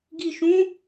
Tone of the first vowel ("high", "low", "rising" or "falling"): low